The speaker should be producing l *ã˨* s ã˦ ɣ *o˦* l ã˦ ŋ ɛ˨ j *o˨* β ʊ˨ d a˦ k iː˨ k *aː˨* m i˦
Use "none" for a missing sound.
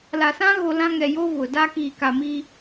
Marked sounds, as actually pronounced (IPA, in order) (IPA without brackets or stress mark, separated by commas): a˨, o˦, o˦, a˨